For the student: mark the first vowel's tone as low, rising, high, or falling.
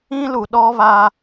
high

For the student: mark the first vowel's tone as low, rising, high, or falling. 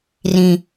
low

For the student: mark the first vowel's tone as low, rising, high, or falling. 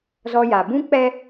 high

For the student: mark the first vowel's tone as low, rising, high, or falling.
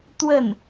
falling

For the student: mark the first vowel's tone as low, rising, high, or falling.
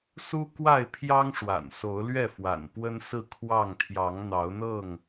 high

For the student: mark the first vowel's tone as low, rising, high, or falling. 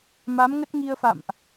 rising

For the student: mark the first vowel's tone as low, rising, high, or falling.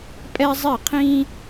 high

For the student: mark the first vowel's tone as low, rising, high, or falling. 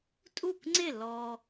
falling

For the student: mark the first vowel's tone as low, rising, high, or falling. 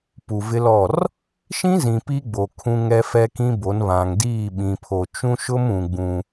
low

